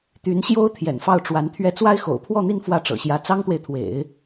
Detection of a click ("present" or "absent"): absent